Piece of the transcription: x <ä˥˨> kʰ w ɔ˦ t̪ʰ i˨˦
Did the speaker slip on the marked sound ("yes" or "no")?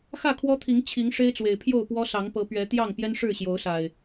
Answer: no